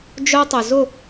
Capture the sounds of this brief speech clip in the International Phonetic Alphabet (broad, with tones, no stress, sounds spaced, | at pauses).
d͡ʒ œ˦ tˤ ʏ˨ z ʊ˦˨